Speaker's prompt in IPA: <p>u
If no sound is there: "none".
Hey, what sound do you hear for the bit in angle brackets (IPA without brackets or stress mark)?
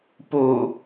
p